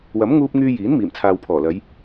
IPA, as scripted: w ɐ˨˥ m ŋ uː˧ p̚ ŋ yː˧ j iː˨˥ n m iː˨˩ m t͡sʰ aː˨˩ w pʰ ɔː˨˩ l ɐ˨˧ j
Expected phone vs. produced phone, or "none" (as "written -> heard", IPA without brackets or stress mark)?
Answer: aː˨˩ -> aː˨